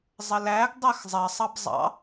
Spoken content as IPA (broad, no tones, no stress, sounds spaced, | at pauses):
zˤ ə l æ ɡ dˤ ə x zˤ ɜ sˤ ɑ b zˤ ɑ̰